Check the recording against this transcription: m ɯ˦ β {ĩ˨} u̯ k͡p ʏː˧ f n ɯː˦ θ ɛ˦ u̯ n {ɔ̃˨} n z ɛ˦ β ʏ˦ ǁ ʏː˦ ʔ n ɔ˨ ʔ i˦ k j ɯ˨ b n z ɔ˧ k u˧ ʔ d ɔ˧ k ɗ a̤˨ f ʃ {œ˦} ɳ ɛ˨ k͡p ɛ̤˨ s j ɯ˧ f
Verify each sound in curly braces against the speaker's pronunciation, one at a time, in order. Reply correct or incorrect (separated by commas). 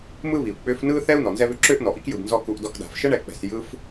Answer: incorrect, incorrect, incorrect